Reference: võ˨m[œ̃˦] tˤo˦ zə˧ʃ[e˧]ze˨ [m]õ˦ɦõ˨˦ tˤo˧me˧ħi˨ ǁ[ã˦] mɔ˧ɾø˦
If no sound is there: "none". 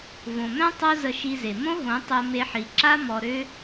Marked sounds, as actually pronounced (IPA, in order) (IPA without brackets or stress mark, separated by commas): œ̃˦, i˧, m, a˦